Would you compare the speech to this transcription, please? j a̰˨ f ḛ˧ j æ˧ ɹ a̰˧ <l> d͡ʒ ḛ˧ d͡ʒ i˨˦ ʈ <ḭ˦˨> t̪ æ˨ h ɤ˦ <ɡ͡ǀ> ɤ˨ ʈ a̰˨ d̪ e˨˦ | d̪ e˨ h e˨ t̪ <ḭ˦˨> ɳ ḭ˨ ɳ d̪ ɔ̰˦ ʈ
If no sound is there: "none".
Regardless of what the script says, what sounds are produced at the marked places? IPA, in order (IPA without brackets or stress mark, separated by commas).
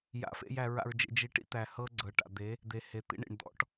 ɹ, ḭ˦, ɡ͡ǀ, ḭ˦